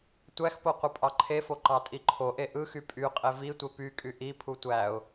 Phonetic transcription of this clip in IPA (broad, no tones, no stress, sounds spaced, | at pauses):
tʷ æ x p o qʷ ɯ pʼ ɑ ǃʰ e f o ǃ ɑ tʼ i ǃʰ o ʔ e ʔ ɯ x y pʼ y qʼ e v i tʷ e p y kʼ y ʔ i pʰ u tʷ æ ʊ̯